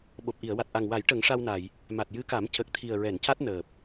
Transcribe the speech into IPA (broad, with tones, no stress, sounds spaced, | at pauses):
ɓ o˨˩ p̚ ʔ i˨˩˨ ə̯ w a˨˩ t̚ ʔ a˨˩ ŋ w a˨˩˦ j ʈ ə˨˩˦ ŋ ʂ a˧ w n a˨˩˨ j | m a˨˩ t̚ j ɨ˧˥ k a˨˩˦ m c ə˨˩ k̚ t̪ʰ i˨˩ ə̯ ɹ ɛ˨˩˨ n c a˦˥ t̚ n əː˨˩ p̚